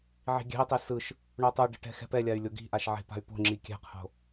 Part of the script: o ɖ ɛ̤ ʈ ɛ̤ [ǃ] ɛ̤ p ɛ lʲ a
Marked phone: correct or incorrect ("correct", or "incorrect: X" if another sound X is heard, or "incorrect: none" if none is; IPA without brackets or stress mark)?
incorrect: x